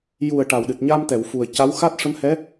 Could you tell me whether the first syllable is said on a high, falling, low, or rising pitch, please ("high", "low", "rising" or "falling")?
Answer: low